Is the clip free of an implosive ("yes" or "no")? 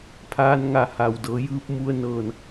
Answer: yes